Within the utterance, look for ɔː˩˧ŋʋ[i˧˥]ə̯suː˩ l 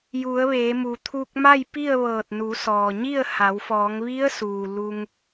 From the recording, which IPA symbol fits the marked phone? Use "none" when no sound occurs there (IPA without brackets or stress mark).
i˧˥